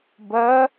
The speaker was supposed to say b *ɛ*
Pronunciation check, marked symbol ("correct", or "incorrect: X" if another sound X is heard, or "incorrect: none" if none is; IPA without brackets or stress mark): incorrect: ɜ